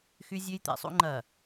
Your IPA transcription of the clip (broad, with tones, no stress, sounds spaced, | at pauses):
x y˦ zʲ ø˦ j t̪ ḛ˨ sˤ ṵ˦ ŋ͡ǃ ɐ˨